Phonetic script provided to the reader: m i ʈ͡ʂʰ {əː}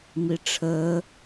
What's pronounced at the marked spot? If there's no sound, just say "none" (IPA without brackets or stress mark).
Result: əː